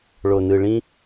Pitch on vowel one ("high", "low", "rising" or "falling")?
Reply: low